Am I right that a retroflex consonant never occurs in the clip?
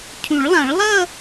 no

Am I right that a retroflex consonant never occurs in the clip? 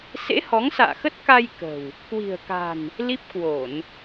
yes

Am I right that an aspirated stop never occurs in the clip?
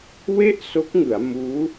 yes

